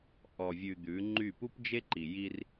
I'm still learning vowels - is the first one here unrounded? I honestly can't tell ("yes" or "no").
no